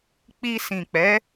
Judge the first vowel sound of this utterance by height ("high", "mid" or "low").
high